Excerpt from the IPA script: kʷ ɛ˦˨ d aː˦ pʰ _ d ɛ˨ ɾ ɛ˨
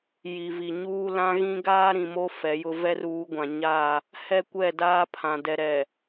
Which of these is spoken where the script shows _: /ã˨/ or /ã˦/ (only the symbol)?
ã˨